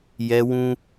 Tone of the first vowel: high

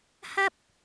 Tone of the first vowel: high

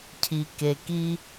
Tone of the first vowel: low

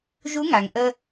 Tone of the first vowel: rising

